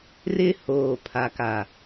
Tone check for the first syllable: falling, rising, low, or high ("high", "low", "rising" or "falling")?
high